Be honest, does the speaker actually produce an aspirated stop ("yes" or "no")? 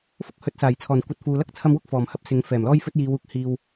yes